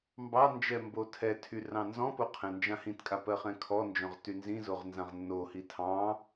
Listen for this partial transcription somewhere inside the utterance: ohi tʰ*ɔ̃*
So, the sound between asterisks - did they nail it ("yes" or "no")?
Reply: no